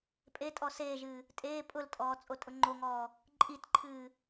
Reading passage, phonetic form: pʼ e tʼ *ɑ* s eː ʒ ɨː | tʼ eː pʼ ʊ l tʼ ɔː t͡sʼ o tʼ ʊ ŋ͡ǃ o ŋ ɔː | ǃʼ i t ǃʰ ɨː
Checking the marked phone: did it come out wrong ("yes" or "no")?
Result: yes